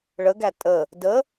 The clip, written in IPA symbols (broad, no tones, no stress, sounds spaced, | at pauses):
ɭ ə ɡ æ tʼ ə | d ə